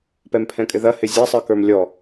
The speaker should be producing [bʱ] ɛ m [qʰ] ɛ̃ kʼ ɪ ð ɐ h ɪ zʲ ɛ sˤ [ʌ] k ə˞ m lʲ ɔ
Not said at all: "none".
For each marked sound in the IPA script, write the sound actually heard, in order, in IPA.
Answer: p, pʰ, ə˞

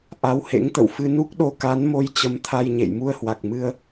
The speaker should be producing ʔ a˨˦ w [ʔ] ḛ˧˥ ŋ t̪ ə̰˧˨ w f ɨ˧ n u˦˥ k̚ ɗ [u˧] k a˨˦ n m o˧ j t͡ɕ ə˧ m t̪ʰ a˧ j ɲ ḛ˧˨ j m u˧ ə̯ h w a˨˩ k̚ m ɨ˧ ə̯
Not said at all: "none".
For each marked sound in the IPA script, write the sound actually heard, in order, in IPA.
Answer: h, o˧

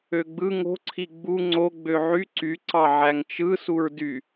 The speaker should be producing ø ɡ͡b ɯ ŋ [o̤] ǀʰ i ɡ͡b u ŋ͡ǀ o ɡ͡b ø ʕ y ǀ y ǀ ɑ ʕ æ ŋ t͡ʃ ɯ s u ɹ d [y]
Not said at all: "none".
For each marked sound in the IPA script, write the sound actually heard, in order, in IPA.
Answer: o̤, y

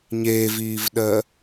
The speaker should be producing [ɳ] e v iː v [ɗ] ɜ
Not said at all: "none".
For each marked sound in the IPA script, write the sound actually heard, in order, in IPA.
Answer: ɲ, ɗ

